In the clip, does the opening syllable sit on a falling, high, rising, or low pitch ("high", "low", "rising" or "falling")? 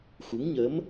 rising